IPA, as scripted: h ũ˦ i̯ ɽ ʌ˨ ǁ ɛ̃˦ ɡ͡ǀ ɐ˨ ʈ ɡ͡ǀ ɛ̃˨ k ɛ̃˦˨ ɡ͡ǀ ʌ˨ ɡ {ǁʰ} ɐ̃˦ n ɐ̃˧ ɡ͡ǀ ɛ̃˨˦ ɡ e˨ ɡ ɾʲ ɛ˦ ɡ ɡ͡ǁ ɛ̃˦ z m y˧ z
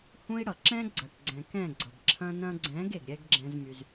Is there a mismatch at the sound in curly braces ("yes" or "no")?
no